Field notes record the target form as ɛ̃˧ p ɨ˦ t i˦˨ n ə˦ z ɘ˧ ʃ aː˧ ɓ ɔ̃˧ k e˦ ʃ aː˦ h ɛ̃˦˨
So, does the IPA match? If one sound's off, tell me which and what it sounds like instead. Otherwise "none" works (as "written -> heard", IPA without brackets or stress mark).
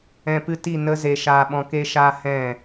ɘ˧ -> e˧